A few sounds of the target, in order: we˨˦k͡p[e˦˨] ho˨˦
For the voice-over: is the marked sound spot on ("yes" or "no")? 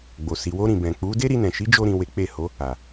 yes